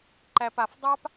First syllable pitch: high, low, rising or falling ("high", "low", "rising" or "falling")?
high